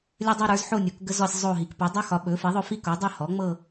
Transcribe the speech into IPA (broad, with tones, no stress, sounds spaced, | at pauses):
lʲ ə˥ dˤ ɵ˥ ɾ ə˞˩˥ z ħ o˥˧ nʲ o˩˥ k ɡ ə˥ z ɔ˥˧ sʲ zˤ o˥˧ ɦ i˩˥ k p o˩˥ dˤ o˥ x ɒ˩˥ ɓ ɵ˩˥ f i˩˥ ðˤ ɵ˥˧ f i˥˧ k o˩˥ dˤ ɵ˥˧ h ɔ˩˥ ŋ͡m ɤ˥˧